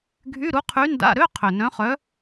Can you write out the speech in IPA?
ɡʱy˧˥˧ɾu˧˥qʰy˧˥ nda̰˧˥˧ɾø˧˥˧ qʰʏ˨˩ nœ̃˧˥χœ˧˥

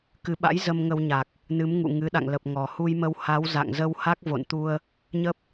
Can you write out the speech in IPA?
kɨ˨˦ɓa̰˧˥j zə˧mŋə˧w ɲa˨˩k̚ | nɨ˨˦mŋṵ˧˨ ŋɨ˨˦ɗa̰˧˨ŋlə˨˩p̚ ŋɔ˨˩hu˧jmə˧w ha˨˦w za̰˧˨ŋzə˧w ha˦˥k̚vo̰˧˨nt̪u˧ə̯ | ɲə˦˥p̚

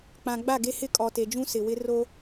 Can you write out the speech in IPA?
k͡pã˨ ɡ͡ba˦˨ɡe˦hɪ˦ kʼɔ˨te˨d͡ʒũ˦ sɪ˨wɪ˦ ro˦

